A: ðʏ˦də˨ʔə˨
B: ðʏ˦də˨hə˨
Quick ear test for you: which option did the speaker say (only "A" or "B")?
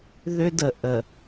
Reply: A